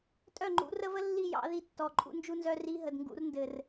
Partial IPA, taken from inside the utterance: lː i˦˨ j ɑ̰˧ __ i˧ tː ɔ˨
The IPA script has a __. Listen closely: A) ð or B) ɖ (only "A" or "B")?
A